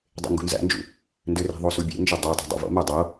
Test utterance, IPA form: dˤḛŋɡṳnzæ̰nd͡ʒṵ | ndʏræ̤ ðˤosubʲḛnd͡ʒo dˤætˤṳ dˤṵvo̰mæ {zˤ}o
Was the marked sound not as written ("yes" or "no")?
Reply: yes